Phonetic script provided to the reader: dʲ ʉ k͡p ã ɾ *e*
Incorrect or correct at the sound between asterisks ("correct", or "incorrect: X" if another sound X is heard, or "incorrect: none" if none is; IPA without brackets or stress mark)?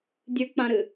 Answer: incorrect: ɨ